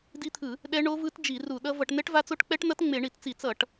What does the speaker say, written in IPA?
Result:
di˦˥t̪ʰɯ˧˩˧ | ɗɛ˦˥ɳo˦˥vɯ˦˥t d͡ʒi˧˩˧ru˧˩˧ɗʌ˦˥ vʌ˧˩˧ʈnɛ˦˥ʈva˦˥t͡so˦˥ʈ k͡pɛ˦˥ʈnʌ˦˥t ŋ͡me˧˩˧ɳi˧˩˧tt͡si˧˩˧ t͡sʌ˧˩˧ʈ

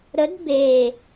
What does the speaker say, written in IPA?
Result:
ɾəd be

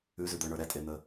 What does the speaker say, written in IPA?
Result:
ʉzʉd̪ə˞ɳə˞ ɾɛtʼen̪ə

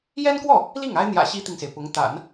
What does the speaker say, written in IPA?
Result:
jɛ˥nkwɔ˥˩ | li˥˩ŋa˥ɪ̯ n̪jä̰˨˩ ɕi˥t̪i˨ŋse˩ɪ̯pʊ˧˥ŋ t̪a̰˨˩˦n

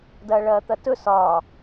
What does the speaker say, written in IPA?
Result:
dɐːɭɐːt̪ɐtɵ sɒː

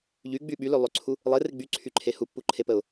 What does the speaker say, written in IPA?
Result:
ʎyɡ͡by ɓylølˠøǀʰu | lˠere ɡ͡byǀʰyǃʰe hupːuǃʰepəʊ̯

